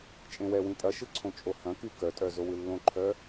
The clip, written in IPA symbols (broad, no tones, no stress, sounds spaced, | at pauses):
t͡ʃʼ ẽ w ɛ w ĩ tʼ ɐ ʃ ɯ ǀʰ õ t͡ʃʼ o h ɐ̃ k y k œ tʼ œ z o w ɯ lː õ ǃʰ œ